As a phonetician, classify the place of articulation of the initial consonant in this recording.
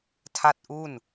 alveolar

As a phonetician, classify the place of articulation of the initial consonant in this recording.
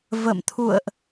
labial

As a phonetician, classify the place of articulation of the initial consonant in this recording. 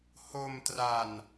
glottal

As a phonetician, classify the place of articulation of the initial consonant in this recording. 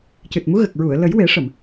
palatal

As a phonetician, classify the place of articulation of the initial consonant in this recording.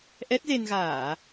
glottal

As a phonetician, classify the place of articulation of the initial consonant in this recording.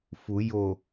labial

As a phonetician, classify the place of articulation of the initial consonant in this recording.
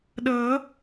alveolar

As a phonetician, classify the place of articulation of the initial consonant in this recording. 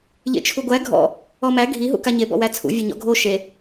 palatal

